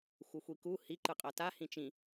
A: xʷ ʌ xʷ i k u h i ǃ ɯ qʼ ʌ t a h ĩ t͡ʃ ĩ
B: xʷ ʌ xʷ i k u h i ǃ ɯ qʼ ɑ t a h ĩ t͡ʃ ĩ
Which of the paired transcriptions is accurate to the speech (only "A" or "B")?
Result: A